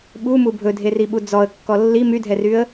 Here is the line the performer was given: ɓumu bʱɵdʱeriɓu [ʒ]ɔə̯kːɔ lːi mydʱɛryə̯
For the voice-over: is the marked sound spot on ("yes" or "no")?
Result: no